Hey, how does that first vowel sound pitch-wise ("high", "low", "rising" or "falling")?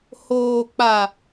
low